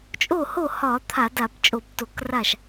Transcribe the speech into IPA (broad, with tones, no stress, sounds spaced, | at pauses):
t͡ʃʼ o˥˩ h o˥˩ h ɒ˧˩˧ t̪ʰ a˧˩˧ d a˧˩˧ b t͡ʃʼ o˧˩˧ b t o˧˩˧ k r a˥˩ ʃ